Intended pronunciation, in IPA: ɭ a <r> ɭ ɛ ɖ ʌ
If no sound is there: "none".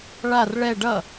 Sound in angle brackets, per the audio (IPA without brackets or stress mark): r